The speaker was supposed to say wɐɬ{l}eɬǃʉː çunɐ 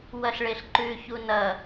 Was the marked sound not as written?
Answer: yes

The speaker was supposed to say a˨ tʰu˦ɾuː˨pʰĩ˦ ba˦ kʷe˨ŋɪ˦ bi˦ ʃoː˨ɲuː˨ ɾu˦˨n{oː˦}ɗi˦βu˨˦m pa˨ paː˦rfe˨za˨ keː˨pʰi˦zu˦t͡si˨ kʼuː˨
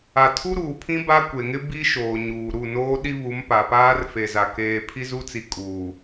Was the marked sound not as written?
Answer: no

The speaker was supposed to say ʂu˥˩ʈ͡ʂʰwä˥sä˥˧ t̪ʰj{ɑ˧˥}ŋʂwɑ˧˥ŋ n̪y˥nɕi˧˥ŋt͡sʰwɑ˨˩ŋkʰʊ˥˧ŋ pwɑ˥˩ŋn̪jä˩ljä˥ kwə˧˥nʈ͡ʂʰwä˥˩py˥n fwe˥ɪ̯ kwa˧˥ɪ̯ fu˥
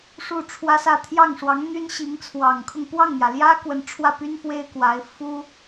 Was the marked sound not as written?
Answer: yes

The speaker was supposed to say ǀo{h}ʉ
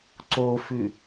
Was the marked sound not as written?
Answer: yes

